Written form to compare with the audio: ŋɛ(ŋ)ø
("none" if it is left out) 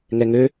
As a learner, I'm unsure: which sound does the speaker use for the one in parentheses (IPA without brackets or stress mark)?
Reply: ŋ